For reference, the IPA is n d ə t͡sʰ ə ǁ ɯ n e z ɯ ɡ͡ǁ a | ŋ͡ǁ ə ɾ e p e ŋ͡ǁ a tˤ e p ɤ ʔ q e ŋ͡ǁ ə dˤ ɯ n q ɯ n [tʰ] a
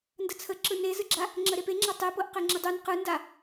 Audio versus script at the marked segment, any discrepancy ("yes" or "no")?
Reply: yes